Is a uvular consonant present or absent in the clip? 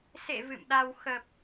absent